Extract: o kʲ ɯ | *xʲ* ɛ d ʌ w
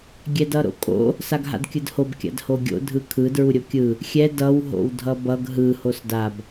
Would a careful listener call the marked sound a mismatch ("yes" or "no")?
no